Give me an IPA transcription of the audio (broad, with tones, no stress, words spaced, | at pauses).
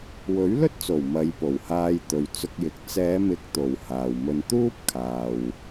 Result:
wɵ˨˥ɥlɵ˥t̚t͡so˨˩w mɐ˨˧jpo˨˩whaː˧jt̪ɵ˨ɥ t͡sʊ˧k̚jɪ˨k̚ t͡sɛː˨˧mɪ˨˥k̚ t̪o˨whaː˨wmɵ˧n t̪uː˥p̚ kʰaː˨w